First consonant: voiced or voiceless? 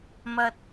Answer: voiced